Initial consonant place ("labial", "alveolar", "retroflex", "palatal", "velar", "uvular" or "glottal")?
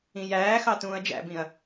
palatal